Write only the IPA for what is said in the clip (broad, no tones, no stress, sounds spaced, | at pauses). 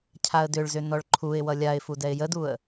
cʰ a ə̯ d ʏ ɭ z ʏ n ɔ ɭ ǃʰ u ɪ̯ w ʌ lʲ a ɪ̯ f u d ɛ ɪ̯ j ə d u ə̯